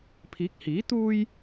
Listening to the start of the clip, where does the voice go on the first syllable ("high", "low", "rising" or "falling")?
rising